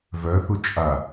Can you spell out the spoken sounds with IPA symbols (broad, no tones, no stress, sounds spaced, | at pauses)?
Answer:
v œ θ u t͡ʃʼ a